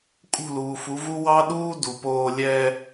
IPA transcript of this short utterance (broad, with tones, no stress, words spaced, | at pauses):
kʼṳ˦˨luː˨fu˨˦vu˦ wɑ˦ɗuː˦ du˨poː˦ lʲɛ˦